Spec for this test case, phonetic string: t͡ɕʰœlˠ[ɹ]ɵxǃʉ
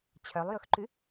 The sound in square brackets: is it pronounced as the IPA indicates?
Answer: no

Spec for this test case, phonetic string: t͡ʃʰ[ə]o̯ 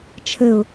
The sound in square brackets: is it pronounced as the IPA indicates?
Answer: yes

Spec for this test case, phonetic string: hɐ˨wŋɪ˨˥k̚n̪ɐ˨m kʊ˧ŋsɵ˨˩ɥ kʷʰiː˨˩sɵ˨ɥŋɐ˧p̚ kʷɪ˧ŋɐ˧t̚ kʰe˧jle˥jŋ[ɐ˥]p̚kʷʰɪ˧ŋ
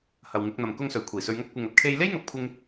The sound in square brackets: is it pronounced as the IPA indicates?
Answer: no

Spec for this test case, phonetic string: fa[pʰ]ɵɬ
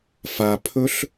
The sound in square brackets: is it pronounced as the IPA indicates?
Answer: yes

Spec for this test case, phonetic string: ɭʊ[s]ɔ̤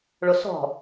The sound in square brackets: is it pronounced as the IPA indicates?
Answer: yes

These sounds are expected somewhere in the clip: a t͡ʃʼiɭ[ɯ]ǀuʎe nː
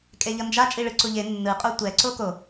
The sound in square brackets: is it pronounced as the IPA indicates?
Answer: yes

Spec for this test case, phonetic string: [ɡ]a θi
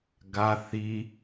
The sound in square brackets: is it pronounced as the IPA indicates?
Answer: yes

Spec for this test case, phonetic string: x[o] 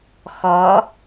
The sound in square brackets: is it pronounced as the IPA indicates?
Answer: no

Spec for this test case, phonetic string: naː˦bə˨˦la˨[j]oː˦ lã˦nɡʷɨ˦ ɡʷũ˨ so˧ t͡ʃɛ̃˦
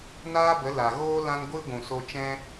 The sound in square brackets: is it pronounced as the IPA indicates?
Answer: no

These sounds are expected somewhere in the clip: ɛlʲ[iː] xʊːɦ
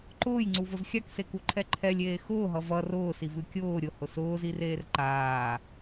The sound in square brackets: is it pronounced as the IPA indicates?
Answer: no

